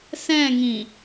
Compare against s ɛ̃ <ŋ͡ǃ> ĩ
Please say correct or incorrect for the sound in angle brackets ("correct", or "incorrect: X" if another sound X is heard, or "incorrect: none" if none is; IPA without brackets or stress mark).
incorrect: ŋ